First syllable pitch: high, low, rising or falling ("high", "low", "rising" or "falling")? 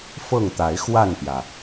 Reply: falling